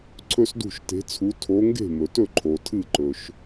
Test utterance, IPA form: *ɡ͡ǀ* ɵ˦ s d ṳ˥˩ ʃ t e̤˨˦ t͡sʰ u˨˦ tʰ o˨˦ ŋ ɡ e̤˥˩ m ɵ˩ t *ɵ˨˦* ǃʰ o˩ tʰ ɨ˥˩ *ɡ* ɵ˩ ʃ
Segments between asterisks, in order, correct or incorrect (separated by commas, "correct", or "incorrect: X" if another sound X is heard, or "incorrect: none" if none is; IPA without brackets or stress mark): incorrect: ǀʰ, incorrect: ɵ˥˩, incorrect: ǃ